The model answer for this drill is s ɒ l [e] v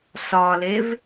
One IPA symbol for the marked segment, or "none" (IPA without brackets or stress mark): e